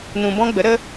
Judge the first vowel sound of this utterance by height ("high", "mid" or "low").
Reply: high